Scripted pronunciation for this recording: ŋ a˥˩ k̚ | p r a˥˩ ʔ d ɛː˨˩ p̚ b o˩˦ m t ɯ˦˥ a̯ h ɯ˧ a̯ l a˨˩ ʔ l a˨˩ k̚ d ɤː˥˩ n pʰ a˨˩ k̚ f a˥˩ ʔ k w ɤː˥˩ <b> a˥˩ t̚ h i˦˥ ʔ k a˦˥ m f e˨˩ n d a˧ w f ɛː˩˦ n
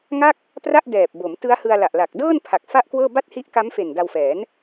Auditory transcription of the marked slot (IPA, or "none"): b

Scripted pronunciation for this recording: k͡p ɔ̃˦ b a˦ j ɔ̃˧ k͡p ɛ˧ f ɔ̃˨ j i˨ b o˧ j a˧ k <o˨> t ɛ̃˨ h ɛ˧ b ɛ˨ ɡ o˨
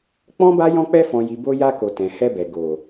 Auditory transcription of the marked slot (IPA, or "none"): o˨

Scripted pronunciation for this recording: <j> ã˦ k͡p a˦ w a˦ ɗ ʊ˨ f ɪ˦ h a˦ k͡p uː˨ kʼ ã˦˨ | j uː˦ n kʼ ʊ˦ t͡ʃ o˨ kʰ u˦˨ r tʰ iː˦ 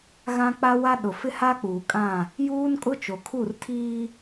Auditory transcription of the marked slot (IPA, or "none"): ɣ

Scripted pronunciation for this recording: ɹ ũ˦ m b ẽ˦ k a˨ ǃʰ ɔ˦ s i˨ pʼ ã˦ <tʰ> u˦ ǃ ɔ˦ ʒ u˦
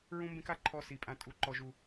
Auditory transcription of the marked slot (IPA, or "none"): tʼ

